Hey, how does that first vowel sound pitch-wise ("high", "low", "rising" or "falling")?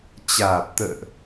low